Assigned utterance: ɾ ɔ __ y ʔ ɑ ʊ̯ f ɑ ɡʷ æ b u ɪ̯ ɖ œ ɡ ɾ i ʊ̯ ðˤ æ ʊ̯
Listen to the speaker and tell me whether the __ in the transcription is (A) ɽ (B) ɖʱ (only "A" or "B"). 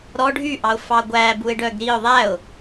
B